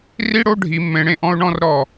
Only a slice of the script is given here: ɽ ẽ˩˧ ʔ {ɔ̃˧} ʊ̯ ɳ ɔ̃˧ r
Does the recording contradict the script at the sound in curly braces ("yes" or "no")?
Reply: no